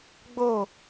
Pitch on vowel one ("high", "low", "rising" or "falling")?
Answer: falling